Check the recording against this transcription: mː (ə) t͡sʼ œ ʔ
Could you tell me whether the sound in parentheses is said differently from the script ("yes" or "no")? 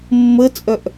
no